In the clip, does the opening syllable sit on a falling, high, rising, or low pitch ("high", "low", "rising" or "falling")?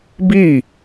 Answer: falling